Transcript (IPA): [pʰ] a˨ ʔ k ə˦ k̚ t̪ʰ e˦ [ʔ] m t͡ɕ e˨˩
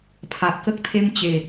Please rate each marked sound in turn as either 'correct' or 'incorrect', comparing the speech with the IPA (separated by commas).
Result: correct, incorrect